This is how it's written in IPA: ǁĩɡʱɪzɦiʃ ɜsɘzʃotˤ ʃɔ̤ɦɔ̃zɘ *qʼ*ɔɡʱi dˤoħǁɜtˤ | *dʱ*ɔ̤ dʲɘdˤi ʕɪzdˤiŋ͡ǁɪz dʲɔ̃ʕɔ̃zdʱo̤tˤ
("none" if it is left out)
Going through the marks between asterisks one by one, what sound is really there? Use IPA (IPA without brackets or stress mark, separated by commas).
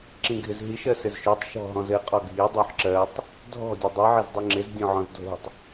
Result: qʼ, dʱ